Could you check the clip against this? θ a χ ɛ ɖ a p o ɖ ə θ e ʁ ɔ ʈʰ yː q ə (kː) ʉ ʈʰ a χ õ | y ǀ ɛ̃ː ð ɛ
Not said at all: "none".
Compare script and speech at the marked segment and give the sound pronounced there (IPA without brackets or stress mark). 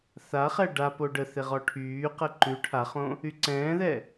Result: ǃ